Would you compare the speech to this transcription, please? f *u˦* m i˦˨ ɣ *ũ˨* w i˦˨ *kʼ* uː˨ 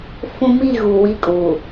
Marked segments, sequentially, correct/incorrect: incorrect: ũ˦, incorrect: u˨, correct

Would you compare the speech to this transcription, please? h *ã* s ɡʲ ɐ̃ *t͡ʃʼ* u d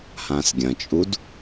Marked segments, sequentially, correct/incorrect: correct, correct

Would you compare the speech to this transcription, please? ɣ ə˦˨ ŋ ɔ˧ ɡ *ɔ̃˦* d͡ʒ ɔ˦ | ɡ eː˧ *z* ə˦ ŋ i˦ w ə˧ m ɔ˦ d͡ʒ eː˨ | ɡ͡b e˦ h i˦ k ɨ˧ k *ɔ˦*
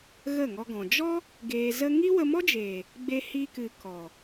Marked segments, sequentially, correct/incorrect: incorrect: ɔ̃˨, correct, incorrect: ɔ˨

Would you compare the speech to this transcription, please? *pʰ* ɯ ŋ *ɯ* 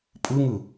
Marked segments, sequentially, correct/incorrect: incorrect: pʼ, correct

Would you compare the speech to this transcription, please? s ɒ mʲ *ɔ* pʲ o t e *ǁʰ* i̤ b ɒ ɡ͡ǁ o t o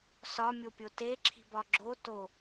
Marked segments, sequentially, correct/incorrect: incorrect: o, correct

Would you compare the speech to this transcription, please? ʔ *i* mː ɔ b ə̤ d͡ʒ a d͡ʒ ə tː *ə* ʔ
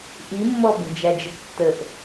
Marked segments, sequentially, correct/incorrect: correct, correct

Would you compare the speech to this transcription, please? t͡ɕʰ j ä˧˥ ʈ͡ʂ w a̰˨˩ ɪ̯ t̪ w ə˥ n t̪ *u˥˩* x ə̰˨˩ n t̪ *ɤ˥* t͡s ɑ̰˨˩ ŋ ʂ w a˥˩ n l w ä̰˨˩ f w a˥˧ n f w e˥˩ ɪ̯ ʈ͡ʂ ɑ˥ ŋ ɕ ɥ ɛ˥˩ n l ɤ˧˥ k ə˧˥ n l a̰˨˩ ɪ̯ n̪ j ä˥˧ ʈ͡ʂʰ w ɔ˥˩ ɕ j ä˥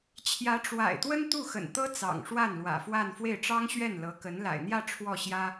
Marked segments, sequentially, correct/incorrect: correct, correct

